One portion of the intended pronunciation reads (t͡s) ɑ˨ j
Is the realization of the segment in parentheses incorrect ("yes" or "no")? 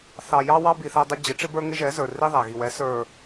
yes